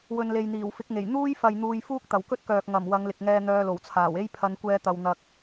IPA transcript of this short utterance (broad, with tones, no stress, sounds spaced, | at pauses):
w ɵ˨ n l e˨ j n̪ iː˨˩ w f ɪ˨˥ k̚ ŋ e˨˩ j n̪ uː˥ j f ɐ˨ j n̪ uː˨ j f uː˥ k̚ t̪ ɐ˨˩ w k ɵ˥ t̚ k œː˨ k̚ ŋ ɐ˨˩ m w ɐ˨˧ ŋ l ɪ˨ k̚ ŋ ɛː˧ n̪ œː˧ l o˨˩ w t͡sʰ aː˨˩ w e˥ j pʰ ɐ˨˧ n kʷ ɛː˧ t̪ ɐ˨ w n̪ ɐ˨ k̚